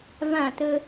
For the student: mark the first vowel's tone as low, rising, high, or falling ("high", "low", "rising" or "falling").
falling